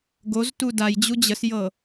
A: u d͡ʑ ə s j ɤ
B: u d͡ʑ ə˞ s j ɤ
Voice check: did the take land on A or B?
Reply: A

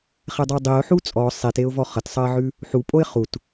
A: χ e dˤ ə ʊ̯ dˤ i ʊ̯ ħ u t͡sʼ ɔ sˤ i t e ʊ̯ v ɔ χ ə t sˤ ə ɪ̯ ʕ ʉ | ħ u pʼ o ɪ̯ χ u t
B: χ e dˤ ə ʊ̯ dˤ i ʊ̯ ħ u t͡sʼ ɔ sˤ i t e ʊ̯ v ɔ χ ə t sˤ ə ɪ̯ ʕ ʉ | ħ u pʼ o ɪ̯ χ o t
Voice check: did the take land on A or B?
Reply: A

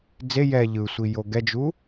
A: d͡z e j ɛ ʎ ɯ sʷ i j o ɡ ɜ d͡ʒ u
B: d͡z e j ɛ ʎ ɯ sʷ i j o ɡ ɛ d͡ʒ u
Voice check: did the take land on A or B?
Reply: B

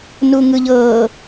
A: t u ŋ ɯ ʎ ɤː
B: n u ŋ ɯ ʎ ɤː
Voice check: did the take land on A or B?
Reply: B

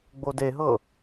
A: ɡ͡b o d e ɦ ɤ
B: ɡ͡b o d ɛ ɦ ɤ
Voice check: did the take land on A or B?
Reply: A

